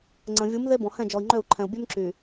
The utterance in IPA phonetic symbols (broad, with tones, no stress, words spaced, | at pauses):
ŋ͡ǀə̃˨vʲu˨˦m ðe˦bɔ̃˨hɛ̃˦˨d͡ʒɔ˨i̯ ŋ͡ǃø˦˨u̯ǃʰɛ̃˨u̯ bʲø˦mǁy˨